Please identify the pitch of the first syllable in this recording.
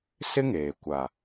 high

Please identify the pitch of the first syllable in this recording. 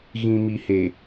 low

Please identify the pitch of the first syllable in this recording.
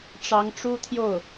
rising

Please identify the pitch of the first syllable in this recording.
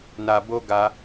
low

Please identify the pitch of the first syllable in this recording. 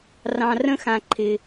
low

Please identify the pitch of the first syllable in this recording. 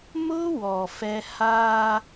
high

